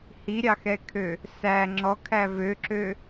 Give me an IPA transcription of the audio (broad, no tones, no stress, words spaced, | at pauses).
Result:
hiɾʲɑxɛkʰø | sæ ŋ͡ǁɔkʰæ vøǁø